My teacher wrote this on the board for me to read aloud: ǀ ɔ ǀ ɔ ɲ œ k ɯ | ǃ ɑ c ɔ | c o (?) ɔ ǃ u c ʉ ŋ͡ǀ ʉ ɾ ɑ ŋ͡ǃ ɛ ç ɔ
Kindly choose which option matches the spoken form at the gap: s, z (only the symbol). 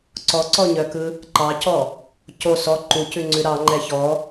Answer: s